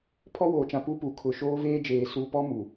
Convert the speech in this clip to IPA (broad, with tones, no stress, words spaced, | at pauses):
pʰɔ˦woː˨t͡ʃã˨ pu˦pu˨ kʰʊ˨ ʃoː˦veː˦d͡ʒeː˨ su˦ pɔ˦mu˨